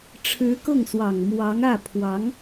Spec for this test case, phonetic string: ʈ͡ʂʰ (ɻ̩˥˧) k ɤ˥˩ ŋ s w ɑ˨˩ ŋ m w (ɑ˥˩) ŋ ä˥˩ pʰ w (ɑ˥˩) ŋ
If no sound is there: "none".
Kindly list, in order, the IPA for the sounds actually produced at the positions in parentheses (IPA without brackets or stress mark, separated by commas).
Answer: ɻ̩˧˥, ɑ˧˥, ɑ˧˥